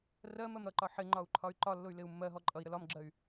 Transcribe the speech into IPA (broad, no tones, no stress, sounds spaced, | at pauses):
r ɜ m ɜ m ɾ ʌ ǃ ɒ ħ ɪ ŋ͡ǃ ɒ u̯ ǃʰ ɒ y̯ ǃ ɒ lː ʊ y̯ l ɪ u̯ mː ɜ ɦ ɔ ǃʼ ʌ i̯ ɾ ə l ɒ m ɡ͡ǁ ɜ y̯